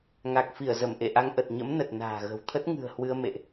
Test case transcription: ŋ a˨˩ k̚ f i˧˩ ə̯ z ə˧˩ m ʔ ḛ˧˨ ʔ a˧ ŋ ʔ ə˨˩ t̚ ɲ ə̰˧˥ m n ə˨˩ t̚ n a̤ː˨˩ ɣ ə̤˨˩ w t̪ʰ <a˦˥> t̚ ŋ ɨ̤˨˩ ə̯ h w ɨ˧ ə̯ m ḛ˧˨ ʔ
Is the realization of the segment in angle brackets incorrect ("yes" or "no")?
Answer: yes